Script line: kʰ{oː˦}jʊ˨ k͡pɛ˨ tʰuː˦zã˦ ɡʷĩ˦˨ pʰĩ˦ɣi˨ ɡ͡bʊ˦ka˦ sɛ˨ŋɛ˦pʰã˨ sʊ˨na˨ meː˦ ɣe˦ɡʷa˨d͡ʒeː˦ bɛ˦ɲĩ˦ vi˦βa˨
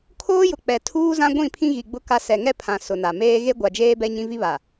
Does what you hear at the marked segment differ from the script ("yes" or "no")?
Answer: no